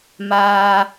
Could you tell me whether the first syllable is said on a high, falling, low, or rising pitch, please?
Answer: high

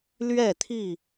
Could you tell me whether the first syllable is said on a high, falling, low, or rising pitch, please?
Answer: falling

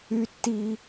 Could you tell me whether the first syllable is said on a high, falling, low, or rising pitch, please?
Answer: high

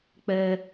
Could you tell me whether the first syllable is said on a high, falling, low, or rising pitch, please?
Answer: high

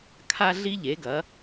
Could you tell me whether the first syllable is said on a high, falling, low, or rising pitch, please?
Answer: high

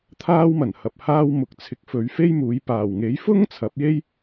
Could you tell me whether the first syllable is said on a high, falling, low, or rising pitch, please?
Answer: high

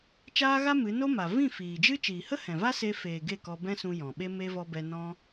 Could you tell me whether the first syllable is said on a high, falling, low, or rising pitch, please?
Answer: high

